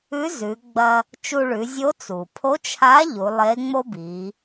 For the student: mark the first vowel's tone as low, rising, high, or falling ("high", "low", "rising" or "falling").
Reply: rising